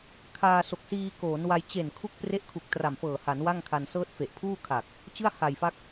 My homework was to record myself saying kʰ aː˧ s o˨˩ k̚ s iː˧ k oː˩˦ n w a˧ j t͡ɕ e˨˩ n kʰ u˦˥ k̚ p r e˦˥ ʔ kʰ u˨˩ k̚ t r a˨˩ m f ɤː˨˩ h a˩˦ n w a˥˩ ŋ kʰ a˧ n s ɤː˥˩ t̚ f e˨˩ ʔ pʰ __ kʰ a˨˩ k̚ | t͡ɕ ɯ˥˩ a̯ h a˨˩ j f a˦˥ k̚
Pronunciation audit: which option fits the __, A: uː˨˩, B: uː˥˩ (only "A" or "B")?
B